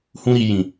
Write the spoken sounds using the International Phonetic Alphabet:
hũ˦ɾi˧jĩ˨

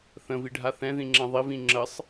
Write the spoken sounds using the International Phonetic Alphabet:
θə̃viɖʱa θɛ̃ðĩŋ͡ǁɛ̃ ðˤivĩ ŋ͡ǁəsˤ

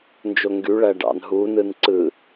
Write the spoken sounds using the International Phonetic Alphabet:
nd͡ʒoŋɡyɭæ ɖɑ̰nɦunɯn ǀɯ

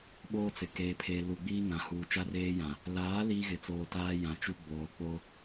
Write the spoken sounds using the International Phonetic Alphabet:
ɓoː˦t͡sɪ˨ keː˨pʰeː˨lu˨ɡ͡biː˦ ŋã˨huː˨ t͡ʃa˦reː˦jã˨ | laː˨˦ liː˦ɣɪ˨t͡soː˨ taː˦ jã˨t͡ʃu˦ ɡ͡boː˨ k͡po˦

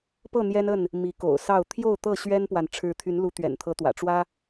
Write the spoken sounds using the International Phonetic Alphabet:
pɤ˥˨n̪jɛ˦nə˥˨n | mi˨˦ko̰˨˩ʊ̯sɑ˥˨ʊ̯ t̪ʰjo˥˨ʊ̯t̪ɤ˥˨ ɕɥɛ˦npwa˨n ʈ͡ʂʰɻ̩˨˦ t̪ʰy˨˦nlu˨˦ t̪ɥɛ̰˨˩nt̪ʰɤ˨˦t̪wä̰˨˩ ʈ͡ʂwä˦

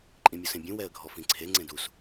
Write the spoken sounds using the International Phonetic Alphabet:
ǃʼĩmʲosẽbʲũ wɛə̯ɡʱɔfĩǀʰe ŋ͡ǀẽdus

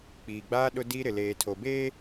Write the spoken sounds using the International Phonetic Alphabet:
k͡piː˨ɡ͡baː˦ ɗʊ˦di˦ɾɪ˨ leː˨tʰo˨beː˦

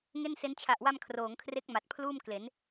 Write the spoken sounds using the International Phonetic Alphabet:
ŋe˥˩nse˦˥n t͡ɕʰa˨˩ʔwa˧m kʰroː˩˦ŋkʰre˦˥k̚ ma˨˩t̚pʰluː˥˩m kle˩˦n

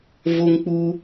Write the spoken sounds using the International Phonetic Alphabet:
vo˥ŋk͡pu˥

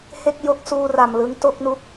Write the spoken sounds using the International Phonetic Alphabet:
he˥˩k̚jo˦˥k̚suː˧ ra˨˩mlɯ˦˥ŋto˥˩k̚ nu˦˥k̚

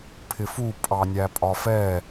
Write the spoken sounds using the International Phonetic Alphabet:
pʰɪfu pʼɑnʲæpʼɒfɛ

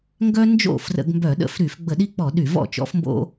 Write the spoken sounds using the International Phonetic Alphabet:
ŋɡœ˦ nd͡ʒo̰˥˩ frə̰˧˩˧ɡmbœ˧˩˧ɗə̰˧˩˧f ɾy˧˩˧f ɡ͡bə˧˩˧ɗi˦k͡pɔ˧˩˧ ɗy˧˩˧vɔ̰˥˩t͡ʃɔ̰˦fmbo̰˦

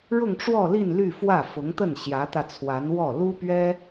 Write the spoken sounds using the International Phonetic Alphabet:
ɻʊ˥˧ŋʈ͡ʂwɔ˥˧li˥˧n ly˥˧fwä˥˩ fʊ˧˥ŋt̪ə˥˩n ɕjä˧˥t̪ä˧ t͡sʰwa˧˥nwɔ˥˩ lu˥pɥɛ˥

